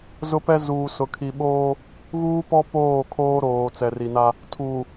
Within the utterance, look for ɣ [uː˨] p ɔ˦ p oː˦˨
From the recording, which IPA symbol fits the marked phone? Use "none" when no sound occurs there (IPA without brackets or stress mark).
uː˦